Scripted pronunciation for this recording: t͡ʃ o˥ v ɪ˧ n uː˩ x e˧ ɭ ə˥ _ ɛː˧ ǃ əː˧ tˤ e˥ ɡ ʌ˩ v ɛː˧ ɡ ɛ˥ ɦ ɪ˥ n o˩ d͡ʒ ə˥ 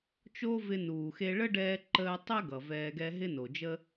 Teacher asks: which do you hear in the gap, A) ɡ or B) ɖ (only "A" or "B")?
B